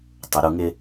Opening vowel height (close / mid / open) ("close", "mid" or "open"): close